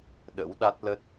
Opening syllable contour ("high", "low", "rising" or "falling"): rising